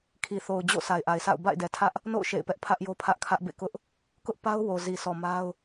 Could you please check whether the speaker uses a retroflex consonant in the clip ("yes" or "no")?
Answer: no